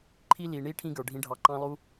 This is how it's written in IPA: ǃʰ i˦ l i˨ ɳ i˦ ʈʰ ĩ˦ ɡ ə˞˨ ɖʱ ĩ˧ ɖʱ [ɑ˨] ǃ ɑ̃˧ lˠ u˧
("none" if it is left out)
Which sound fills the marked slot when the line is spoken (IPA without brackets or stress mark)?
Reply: ɑ˨